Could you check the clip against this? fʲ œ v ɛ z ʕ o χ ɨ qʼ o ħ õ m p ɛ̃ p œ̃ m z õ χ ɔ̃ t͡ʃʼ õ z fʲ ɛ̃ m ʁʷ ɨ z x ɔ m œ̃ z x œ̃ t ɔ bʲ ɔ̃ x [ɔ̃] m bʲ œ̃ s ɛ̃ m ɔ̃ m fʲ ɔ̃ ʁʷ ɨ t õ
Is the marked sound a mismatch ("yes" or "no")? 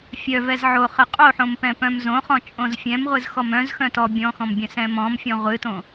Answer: no